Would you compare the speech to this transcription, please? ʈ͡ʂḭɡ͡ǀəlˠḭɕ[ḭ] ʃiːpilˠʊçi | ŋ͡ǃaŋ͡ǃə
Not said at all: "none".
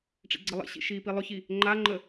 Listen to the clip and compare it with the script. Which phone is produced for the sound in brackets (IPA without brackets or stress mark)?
ḭ